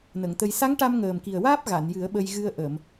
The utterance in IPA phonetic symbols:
n ə˨˩˨ ŋ t̪ ə˧ j s a˧˥ ŋ ʈ a˧ m ŋ əː˨˩ m k i˨˩ ə̯ w aː˦˥ p̚ ɣ a˨˩˨ n j ɨ˨˩˦ ə̯ ɓ ə˧ j ɣ ɨ˧ ə̯ ʔ ə˨˩˨ m

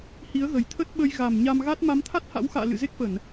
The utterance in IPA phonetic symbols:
h i˨˦ ə̯ ɣ ə˨˩ j t̪ʰ ə˦˥ t̚ ɓ ə˧ j ɣ a˨˩ m ɲ a˧ m ɣ a˦˥ t̚ m a˨˦ m t̪ʰ a˦˥ t̚ h a̰˧˥ w x a̰ː˧˨ l ɨ̰˧˨ z e˦˥ k̚ f ə˧˩˨ n

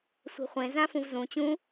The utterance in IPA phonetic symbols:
sʷ e̤ χʷ ẽ z ã f ũ v z ũ t͡ɕ ũ

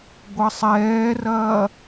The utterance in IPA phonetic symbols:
ɡʷ ɜ sˤ ɛː r ɐː

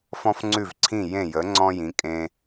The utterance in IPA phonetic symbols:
f ɔ̃˥ f ŋ͡ǀ ʉ˥˩ v ǀʰ ĩ˥˩ j ẽ˥˩ j ə˩˥ ŋ͡ǀ ɔ̃˥ j ĩ˩˥ kʼ ẽ˧

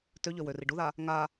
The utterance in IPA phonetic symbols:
t ø ʎ ø w ø r i ɖ u ð a | ŋ a

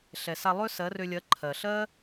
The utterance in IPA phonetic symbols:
ɬ ɛ˨ s a˧ lˠ ø˦ s ɜ˨˦ r ø˧ lʲ ɜ˨˦ ǃʰ ɜ˨ ɬ ɜ˦

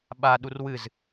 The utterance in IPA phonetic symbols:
ɓ a ɗ u r w ɨ z

